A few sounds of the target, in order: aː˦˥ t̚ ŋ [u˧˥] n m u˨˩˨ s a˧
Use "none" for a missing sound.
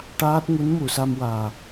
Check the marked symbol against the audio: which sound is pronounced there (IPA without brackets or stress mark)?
u˧˥